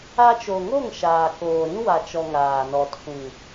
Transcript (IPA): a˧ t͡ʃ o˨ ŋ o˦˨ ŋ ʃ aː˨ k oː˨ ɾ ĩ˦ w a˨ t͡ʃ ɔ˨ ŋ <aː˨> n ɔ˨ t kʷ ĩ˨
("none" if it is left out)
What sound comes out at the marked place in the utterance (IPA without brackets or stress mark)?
aː˨